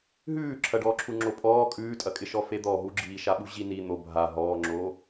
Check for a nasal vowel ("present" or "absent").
absent